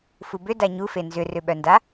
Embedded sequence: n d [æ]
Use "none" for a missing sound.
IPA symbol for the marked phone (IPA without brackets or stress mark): a